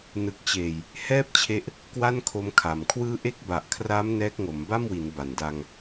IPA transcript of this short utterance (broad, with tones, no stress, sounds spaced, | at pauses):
n ɯ˨˩ k̚ t͡ɕ eː˨˩ j | h ɛː˥˩ p̚ t͡ɕʰ e˦˥ ʔ | k w a˥˩ n kʰ o˦˥ m kʰ a˨˩ m kʰ w ɯː˦˥ ʔ e˦˥ k̚ b a˨˩ ʔ kʰ r aː˦˥ m n ɛː˦˥ k̚ ŋ o˩˦ m b a˥˩ m w i˩˦ n b a˨˩ n d a˧ ŋ